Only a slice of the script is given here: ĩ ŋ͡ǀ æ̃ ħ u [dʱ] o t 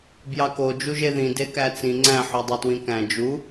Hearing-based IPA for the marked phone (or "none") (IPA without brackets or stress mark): dˤ